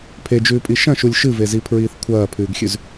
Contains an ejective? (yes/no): yes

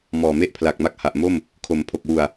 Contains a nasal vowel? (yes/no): no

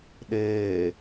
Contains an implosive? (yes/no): yes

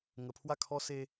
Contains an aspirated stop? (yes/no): yes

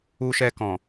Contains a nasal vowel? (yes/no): yes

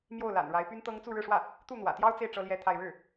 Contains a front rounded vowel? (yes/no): yes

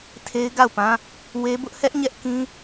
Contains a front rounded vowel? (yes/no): no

